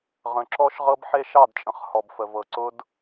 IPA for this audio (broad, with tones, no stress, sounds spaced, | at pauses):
ʁ ə̃˨ ǁ ɔ˦ ʃ ʁ ɤ˦ b ħ e˦ ʃ ɑ˦˨ d t͡ʃʼ ə̃˨ χ h ɔ˨ b f ə˨ v ɤ˨ ǀ ʊ˦ d